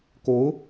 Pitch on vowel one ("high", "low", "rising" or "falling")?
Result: rising